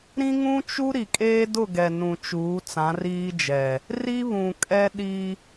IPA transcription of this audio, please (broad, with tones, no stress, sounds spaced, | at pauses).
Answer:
ɾ ĩ˦ ŋ ũ˦ t͡ʃ u˦ ɾ i˨ kʼ eː˦ d ʊ˦˨ ɡ ɛ˨ n ũ˨ t͡ʃ uː˨˦ t͡s ã˨˦ r iː˦ d͡ʒ ɛ˨ | r i˦ β ũ˨ kʼ ɛ˦ ɗ i˦